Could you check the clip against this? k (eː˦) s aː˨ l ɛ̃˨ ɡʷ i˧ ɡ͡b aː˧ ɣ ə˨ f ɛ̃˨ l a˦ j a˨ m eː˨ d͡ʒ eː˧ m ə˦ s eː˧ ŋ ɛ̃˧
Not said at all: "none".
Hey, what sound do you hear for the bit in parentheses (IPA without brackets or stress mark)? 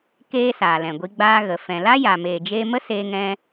eː˧